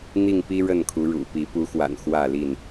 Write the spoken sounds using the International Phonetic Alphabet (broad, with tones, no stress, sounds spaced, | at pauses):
n̪ i˥˨ ŋ p i˦ ɻ ə˥˨ n kʰ u˨˦ ɻ ṵ˨˩ p i˨˦ p u˨˦ x w a̰˨˩ n x w ä˥˨ l i˥˨ n